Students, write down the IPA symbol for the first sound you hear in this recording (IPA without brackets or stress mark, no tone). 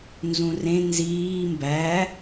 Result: n